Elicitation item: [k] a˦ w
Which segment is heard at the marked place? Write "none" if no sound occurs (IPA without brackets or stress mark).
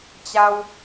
t͡ɕ